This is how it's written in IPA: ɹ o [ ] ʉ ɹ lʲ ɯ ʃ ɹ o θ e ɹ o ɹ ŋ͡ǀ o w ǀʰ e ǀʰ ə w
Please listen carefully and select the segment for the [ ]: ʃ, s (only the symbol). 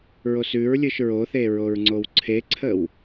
s